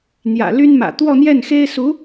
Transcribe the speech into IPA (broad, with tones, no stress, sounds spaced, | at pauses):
n̪ j ä̰˨˩ l y˥ n m ä̰˨˩ t̪ w ɔ˥˧ n̪ j ɛ˥˩ n x e˥ ɪ̯ s u˧˥